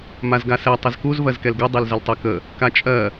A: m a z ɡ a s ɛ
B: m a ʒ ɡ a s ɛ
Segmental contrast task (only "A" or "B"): A